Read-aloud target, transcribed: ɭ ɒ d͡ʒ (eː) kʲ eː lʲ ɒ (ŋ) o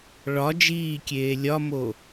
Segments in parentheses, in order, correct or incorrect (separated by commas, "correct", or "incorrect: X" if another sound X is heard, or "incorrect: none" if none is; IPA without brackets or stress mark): incorrect: iː, incorrect: m